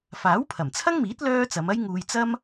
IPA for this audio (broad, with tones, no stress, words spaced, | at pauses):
faː˨˥wpʰɐ˨˩mt͡sʰɐ˥ŋmiː˨˥t̚ lœː˥ t͡sɐ˨˧mɐ˥jŋuː˧j t͡sɐ˥m